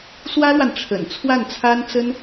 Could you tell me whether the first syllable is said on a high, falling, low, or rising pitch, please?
high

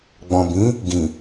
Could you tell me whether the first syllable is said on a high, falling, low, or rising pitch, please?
low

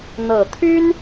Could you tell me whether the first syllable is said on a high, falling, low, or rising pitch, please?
low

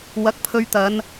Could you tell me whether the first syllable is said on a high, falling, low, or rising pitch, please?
rising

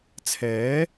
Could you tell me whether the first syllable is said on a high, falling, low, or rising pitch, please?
rising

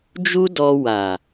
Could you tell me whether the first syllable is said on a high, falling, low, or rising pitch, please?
high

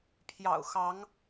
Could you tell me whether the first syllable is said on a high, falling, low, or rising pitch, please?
low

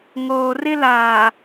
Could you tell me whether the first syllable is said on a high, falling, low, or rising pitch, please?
low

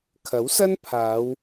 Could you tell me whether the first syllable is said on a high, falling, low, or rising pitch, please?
rising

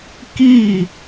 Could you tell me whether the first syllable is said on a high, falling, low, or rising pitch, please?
falling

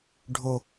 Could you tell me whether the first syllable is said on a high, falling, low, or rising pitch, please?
low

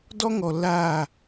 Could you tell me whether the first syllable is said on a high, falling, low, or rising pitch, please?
high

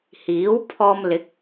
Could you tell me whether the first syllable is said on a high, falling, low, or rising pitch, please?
rising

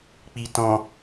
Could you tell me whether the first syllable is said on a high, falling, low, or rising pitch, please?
low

